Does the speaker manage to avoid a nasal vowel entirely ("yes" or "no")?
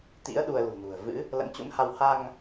yes